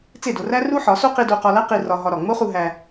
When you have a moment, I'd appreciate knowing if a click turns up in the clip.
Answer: no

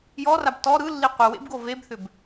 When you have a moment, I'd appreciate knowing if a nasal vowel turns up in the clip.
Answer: no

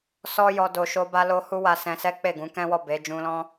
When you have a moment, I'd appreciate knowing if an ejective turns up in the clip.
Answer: no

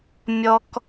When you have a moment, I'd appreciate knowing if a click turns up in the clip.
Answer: no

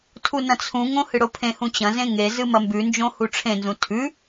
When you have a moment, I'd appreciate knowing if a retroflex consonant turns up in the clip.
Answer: yes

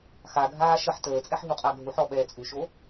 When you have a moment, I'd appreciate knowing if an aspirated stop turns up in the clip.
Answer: no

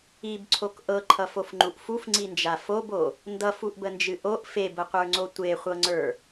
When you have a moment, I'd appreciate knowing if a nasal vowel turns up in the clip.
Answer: no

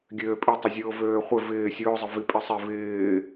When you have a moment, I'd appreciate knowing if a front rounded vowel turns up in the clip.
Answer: yes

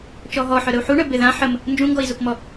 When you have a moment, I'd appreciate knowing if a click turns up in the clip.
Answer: no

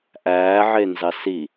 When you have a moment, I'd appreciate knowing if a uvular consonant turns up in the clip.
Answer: no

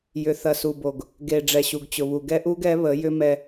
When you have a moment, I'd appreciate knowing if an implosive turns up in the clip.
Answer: no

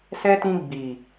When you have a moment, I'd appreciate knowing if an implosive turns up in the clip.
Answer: no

